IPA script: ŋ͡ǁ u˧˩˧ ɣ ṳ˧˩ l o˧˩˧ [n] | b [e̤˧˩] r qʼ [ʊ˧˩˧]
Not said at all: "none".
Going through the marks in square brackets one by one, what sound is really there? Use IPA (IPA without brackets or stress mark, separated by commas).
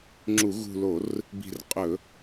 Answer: r, i̤˧˩, ɵ˧˩˧